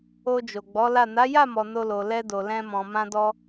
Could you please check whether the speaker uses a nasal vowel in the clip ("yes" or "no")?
yes